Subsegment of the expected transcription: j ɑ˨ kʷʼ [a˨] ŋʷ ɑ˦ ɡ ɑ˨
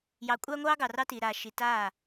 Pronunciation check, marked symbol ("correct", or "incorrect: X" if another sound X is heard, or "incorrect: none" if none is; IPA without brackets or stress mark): incorrect: a˦